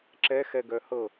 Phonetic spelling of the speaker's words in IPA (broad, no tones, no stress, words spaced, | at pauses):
ǁɛxɛɡœ hɤ